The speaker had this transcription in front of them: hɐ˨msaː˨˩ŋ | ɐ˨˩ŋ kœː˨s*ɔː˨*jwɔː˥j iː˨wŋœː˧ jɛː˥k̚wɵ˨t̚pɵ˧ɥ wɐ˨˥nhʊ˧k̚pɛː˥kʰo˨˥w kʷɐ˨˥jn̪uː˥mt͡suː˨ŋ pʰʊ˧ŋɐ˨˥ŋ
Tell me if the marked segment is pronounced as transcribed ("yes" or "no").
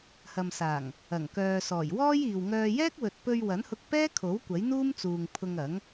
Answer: no